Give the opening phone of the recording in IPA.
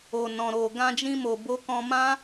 o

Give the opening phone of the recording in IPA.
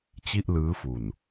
t͡ɕ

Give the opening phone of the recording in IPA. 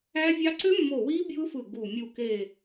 æ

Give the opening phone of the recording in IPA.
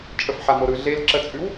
t͡ʃʼ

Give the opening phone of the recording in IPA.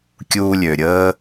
kʲ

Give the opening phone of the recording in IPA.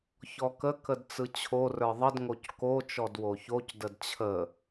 ç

